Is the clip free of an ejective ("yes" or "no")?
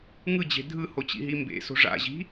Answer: yes